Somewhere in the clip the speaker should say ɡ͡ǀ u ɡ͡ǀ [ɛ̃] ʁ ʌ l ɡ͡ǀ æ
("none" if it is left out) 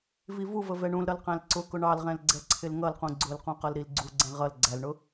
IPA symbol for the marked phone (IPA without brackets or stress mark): ɛ̃